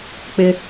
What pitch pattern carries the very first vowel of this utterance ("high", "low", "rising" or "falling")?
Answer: high